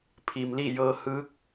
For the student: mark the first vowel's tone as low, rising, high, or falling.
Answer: low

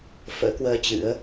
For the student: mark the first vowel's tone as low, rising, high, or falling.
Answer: rising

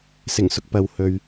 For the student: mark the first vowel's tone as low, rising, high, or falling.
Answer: low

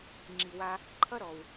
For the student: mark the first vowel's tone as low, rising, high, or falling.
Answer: low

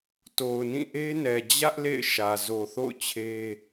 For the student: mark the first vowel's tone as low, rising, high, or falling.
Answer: low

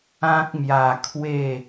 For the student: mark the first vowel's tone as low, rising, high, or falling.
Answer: high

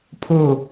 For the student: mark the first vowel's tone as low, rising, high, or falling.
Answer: falling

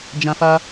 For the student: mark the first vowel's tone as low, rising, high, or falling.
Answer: high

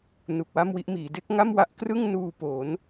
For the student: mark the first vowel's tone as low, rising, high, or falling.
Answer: low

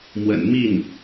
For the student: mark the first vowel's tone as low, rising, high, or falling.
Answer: low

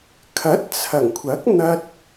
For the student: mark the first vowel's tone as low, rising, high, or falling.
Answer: rising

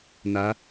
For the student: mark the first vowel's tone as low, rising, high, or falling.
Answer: rising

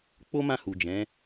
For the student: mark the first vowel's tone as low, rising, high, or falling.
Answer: high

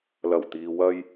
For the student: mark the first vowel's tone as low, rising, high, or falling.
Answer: low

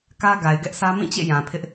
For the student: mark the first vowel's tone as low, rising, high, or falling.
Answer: high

